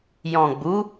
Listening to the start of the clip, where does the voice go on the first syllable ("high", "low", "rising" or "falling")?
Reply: low